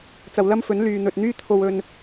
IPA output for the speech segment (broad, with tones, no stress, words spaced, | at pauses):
t͡sɐ˨wlɐ˥mfɵ˨˥n lyː˨n̪ɵ˨t̚n̪yː˥ t̪ʰo˨wɵ˨n